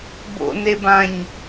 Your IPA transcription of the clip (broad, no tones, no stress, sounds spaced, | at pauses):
b o̰ n e b ã ɲ